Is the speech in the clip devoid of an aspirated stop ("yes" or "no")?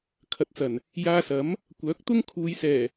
no